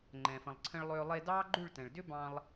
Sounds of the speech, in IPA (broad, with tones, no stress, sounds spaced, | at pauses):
ŋ͡ǃ ɛ̃˨ f ə̃˨ lˠ ǀʰ ə̃˧ ɭ lˠ ʏː˧ lˠ e˧ d ɑː˦ ɡ͡ǃ ʉ˦˨ ɭ t ɛ̃˨ ɭ d ʏ˦ b ɑ̃˧ lˠ